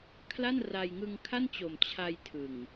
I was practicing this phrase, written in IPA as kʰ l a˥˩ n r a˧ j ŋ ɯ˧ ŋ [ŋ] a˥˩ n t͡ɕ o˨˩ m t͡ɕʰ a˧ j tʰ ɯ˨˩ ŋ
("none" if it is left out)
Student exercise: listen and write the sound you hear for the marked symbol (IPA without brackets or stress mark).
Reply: kʰ